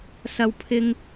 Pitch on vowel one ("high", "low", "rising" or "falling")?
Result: high